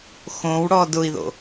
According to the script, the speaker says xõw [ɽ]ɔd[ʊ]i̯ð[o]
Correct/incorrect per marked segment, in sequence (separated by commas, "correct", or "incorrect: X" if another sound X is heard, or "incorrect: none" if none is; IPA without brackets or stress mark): correct, correct, incorrect: o̰